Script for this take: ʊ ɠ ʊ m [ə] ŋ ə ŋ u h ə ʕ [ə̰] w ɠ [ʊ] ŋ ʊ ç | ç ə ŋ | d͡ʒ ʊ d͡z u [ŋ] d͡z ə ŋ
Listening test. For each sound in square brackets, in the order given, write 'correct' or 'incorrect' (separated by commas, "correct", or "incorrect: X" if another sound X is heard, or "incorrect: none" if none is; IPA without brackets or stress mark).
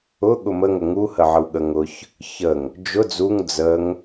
correct, incorrect: ə, incorrect: ə, correct